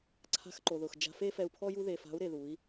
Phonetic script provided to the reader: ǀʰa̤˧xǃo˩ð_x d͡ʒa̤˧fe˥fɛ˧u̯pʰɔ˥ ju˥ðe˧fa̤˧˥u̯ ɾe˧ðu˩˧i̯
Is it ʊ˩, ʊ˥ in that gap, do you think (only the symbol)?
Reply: ʊ˩